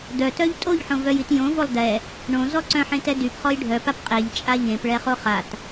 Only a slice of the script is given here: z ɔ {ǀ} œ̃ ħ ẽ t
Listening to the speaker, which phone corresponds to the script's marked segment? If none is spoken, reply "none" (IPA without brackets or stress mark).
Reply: ǀ